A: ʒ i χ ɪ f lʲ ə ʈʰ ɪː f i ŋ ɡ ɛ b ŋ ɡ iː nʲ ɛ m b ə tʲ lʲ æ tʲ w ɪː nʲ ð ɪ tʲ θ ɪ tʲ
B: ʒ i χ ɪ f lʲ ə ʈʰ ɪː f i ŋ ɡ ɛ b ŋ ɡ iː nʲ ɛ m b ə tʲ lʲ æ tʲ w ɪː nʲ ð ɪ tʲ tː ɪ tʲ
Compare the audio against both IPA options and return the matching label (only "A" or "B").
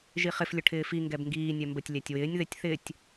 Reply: A